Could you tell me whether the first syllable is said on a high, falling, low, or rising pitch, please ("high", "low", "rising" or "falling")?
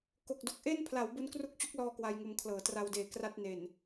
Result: low